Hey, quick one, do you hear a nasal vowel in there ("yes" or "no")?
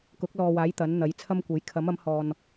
no